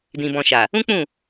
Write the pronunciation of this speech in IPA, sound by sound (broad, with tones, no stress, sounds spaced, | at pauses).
d ĩ˨ b ɔ̃˨ ʃ a˨ | ũ˦ k͡p ũ˦˨